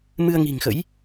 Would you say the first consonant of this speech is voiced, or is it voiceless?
voiced